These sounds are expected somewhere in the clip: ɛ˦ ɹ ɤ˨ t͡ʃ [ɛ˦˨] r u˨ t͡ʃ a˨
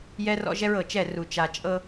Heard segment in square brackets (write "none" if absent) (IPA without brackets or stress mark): ɛ˦˨